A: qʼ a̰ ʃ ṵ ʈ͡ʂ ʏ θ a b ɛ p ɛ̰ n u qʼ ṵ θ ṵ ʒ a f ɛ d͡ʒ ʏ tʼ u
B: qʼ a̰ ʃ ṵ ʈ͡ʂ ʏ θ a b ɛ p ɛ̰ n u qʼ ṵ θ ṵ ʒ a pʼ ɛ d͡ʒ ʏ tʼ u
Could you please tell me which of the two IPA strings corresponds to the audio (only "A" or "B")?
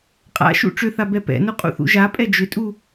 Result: B